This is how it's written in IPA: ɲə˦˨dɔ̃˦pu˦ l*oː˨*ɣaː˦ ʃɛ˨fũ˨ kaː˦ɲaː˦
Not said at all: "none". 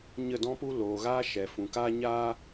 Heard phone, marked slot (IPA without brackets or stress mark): oː˨